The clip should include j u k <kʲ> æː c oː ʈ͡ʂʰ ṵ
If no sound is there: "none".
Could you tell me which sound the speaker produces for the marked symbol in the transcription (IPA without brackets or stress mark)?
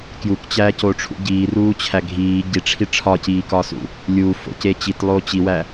t͡ɕ